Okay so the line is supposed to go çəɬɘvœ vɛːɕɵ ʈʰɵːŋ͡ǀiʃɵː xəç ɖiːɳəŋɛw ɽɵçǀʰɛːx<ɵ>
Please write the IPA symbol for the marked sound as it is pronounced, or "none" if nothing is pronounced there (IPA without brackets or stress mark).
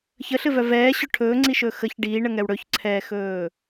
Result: ɵː